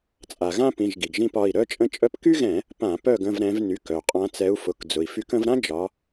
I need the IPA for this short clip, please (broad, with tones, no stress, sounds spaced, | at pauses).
t͡sʼ a˩ ɣ ã˥ p ĩ˩˧˩ ʒ ɡ i˩ ɡ ʒ ĩ˦˨ p ɒ˩˧˩ i̯ ɾ œ˥ t͡ʃʼ ə̃˥ t͡ʃʼ œ˥ p k y˥ ɣ ɛ̃˧˩˧ | p ã˧˩˧ p œ˦˨ ɡ ə̃˦˨ v ɾ ɛ̃˨˦ v n y˩˧˩ k œ˩ qʼ ã˨˦ t͡s ɛ˨˦ u̯ f ʊ˩˧˩ k d͡z ʊ˩ i̯ f y˨˦ k ə̃˨˦ v ɾ ã˥ d͡ʒ ɒ˨˦